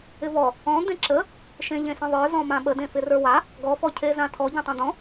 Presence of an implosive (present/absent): present